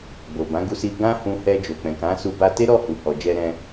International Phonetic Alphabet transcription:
ɡ͡b o˨ b ã˨˦ ɡ u˧ s i˧ ɡ ã˦ h ũ˧ h ɛ˧ d͡ʒ o˨ k͡p ɛ̃˨ k ã˨˦ s u˧ b a˧ t e˦ ɾ ɔ˦˨ h u˨ h ɔ˨ d͡ʒ ɛ˧ ɾ ɛ̃˧

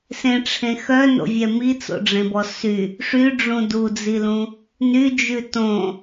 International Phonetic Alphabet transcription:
s ẽ ʈ͡ʂʰ ẽ x œ n o̰ vʲ ɛ m i t͡s o̰ ɖ͡ʐ ẽ b ɔ s y | ʂ y ɖ͡ʐ ũ d u d͡z i l ũ | n y d͡ʒ ʉ t õ

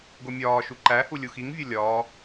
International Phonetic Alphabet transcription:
ɡ o mʲ ɒː ʃ u ǃ æ h u lʲ u x i ŋ vʲ o lʲ ɒː

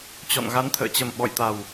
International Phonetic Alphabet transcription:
t͡ɕ ɔ̰˧˨ n ɣ a˨˦ n t̪ʰ ə̰ː˧˨ t͡ɕ ə˨˩ m ɓ ɔ̰˧˨ j t̪ a˨˩ w

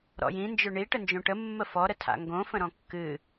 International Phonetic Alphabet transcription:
ɾ ɔ̰ j ĩ n d͡ʒ ʏ ɳ i ʈ ə n d͡ʒ õ ʈ ə mː ə f ɔ ɾ ə tʰ a̰ ŋ ɡ õ f ə̃ ɾ ɔ̃ kː ɨ

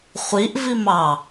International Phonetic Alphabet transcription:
χʷ i ʔ v i m ɑ

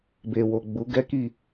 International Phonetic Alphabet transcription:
b e˨ w o˨ ɡ͡b u˨˦ ɡ ɛ˦ k i˦˨

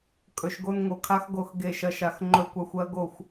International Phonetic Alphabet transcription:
kʼ ɵ˨˩ ʃ ɡ o˦ n ŋ o˨˩ kʰ a˦ x ɡ o˦˨ x ɡ e˦˨ ʃ ɐ˦ ʃ a˦˨ x ŋ͡ǃ ɵ˦˨ kʷ a˦ xʷ ɜ˦ ɡ o˦˨ xʷ

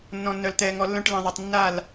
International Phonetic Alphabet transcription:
nː ɔ̃˨ nː œ˨ l t̪ ɛː˨ ŋ ɔ˨ lː œ̃˦ ʈ l ĩ˨ ðˤ ʌ˨ tˤ nː a˦˨ l

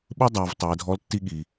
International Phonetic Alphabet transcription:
ɓ ɯ˥ dˤ aː˩˧ v tˤ ɛː˩˧ dʱ ɔ˧˥ l tː i˥ ɠ i˩

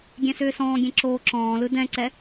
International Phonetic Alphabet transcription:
ɡʲ ɛ̃ s ʏː s ɔ̃ː ɡʲ ɛ̃ ǁ oː ǁ ɔ̃ː l ɯ d ɛ̃ ǀ ɛ

